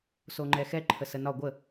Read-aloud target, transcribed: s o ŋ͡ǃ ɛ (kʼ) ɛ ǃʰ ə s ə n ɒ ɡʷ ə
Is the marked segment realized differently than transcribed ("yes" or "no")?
yes